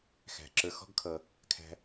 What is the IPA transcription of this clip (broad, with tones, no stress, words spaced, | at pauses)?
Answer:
xæ̤˩ ǁə˞˨xɔ̤˦ɡkʰʌ˩ | kʰæ̤˨